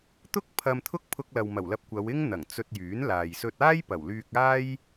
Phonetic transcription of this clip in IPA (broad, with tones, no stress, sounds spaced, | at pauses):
t̪ ʊ˥ k̚ pʰ ɐ˧ m t̪ʰ ʊ˥ k̚ pʰ ʊ˧ k̚ l ɐ˨ w m ɐ˨˩ w l ɐ˧ p̚ kʷ ɐ˨˧ w ɪ˥ ŋ n̪ ɐ˨˩ ŋ t͡s ɵ˧ t̚ j yː˨˥ n l aː˨ j s ɵ˧ t̚ aː˥ j p ɐ˨˩ w l yː˧ k̚ aː˥ j